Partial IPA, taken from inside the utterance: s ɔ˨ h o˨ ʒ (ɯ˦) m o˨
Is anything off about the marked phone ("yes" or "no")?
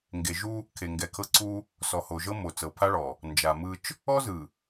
yes